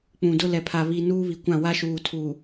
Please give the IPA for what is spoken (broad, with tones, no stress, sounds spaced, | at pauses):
k͡p ũ˨ d ʊ˦ l ɛ˨ pʰ a˨ β i˨ n uː˦ β i˨ kʷ ã˦˨ w a˦ ʃ uː˨ tʰ u˨